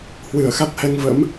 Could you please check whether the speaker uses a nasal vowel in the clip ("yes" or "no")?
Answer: no